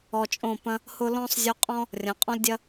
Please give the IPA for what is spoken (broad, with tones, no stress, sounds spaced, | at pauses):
ɔ˧ t͡ʃʼ õ˦˨ p ɐ̃˦ | h ʊ˦ l ɔ̃˦ sˤ zʲ u˧ qʼ ɔ̃˦ | rʲ ɐ̃˨˦ qʼ ɔ̃˦ l dʲ ɐ˦